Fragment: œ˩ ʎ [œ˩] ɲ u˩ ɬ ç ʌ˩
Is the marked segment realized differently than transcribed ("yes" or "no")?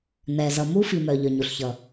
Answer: no